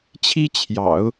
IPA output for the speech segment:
t͡ɕʰ i˥ t͡ɕʰ j ɑ̰˨˩˦ ʊ̯

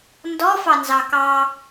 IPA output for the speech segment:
n d ɔ f ɑ n z ɑ k ɑ

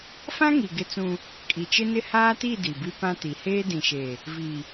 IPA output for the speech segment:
f ã˦ ŋ i˨ ɡ ɪ˦ t͡s ũ˦ | kʼ i˨ t͡ʃ ɪ˦ n ɪ˦ h aː˦ t i˦˨ d i˨ b i˦ p ã˦ t i˨ h eː˦ d ĩ˨ ʃ e˨ | v i˨

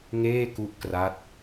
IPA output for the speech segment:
ŋ eː˥˩ k u˦˥ ʔ k r a˦˥ t̚

